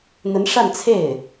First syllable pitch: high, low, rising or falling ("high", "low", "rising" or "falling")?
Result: rising